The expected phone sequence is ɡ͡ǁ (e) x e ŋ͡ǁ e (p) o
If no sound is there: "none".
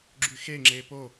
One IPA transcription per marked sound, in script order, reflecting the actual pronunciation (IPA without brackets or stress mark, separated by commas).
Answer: y, p